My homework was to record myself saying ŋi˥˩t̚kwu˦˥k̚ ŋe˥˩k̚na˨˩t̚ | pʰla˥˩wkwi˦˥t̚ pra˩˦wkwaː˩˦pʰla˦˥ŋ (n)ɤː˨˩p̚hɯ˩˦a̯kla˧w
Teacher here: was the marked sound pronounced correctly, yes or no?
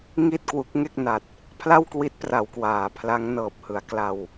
yes